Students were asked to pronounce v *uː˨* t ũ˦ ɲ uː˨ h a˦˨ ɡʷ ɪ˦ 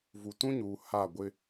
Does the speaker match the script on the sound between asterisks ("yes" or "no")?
no